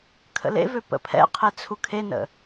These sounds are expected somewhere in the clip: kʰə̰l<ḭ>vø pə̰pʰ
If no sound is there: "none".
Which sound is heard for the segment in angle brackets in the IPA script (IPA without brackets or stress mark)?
ḛ